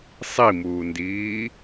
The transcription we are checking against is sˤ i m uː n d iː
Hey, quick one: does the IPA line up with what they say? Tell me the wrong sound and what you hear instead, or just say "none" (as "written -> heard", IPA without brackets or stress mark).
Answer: none